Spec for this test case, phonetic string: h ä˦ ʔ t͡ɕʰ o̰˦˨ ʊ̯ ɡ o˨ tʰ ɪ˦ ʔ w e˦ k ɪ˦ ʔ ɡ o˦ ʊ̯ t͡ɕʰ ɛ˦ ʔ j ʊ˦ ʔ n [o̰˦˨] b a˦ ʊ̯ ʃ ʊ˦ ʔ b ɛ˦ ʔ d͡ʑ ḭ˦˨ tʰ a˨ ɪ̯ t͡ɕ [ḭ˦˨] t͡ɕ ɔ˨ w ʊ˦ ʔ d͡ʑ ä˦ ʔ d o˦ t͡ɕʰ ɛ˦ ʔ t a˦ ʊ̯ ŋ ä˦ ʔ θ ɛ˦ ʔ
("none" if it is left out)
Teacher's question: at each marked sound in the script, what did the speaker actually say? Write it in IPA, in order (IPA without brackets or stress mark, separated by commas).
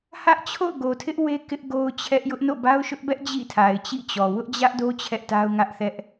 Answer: o̰˦˨, ḭ˦˨